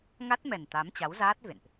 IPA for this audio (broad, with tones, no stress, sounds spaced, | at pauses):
ŋ a˦˥ t̚ m ɛ˨˩ n t̪ a˨˦ m t͡ɕ a˨˦ w z aː˦˥ t̚ v ḛ˧˨ n ʔ